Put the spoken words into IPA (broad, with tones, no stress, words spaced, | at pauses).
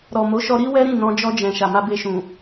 ɾɔ˨mo˨˦ʃɔ˧ ɾi˦ wɛ˦ɾĩ˦˨ nɔ̃˧d͡ʒɔ˧d͡ʒɛ̃˨ ʃa˨ma˧be˧ʃũ˨